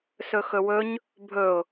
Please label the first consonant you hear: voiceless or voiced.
voiceless